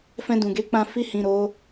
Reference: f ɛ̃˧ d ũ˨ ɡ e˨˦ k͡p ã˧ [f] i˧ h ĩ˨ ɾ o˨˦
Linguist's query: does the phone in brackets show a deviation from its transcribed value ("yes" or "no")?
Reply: no